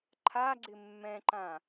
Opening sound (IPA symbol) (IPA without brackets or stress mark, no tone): ǃʰ